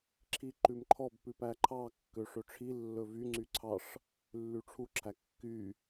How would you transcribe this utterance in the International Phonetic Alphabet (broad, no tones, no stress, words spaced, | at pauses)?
ǁʰiǃʉmǃʰɔb pʉpæǃʰɑ kːøʂɵʈ͡ʂʰi lːɵvy ŋ͡ǀyǀʰɑʂ | lːyʈ͡ʂʰu ǁʰækːy